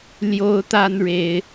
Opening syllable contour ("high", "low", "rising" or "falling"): high